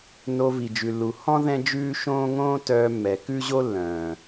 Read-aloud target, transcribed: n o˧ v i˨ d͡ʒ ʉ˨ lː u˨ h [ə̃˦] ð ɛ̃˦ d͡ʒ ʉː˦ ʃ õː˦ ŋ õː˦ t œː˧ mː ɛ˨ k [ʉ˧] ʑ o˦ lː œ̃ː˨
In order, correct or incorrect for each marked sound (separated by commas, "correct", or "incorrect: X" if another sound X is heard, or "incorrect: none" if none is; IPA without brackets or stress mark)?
incorrect: ɔ̃˦, incorrect: ʉ˦